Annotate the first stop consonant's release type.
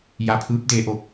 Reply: aspirated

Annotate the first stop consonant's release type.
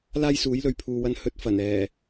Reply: aspirated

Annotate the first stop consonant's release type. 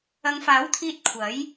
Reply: aspirated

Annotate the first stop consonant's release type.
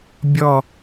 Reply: plain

